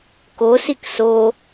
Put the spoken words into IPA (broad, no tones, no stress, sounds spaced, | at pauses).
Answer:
k o s i k s o